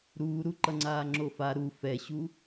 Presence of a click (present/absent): present